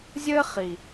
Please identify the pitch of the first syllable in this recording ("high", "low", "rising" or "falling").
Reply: high